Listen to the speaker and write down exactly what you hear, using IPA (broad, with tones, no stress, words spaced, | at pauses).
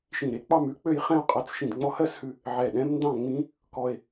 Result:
ʃĩ˧˩ɾe˧k͡pɑ˥˧mʉ˧˥ k͡pø˥˧jχɛ̃˥˧o̯qʼa˧˥t͡s ʃĩ˧˩dŋ͡mɔ˧hɜ˥˧shʉ˧ | ʕɛ˧˩ɗɛ̃˧˥m ndɑ̃˥˧ŋ͡mĩ˧˥ | kɔ˧e̯